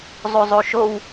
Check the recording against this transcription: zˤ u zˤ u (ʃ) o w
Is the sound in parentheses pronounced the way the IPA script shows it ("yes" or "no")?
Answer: yes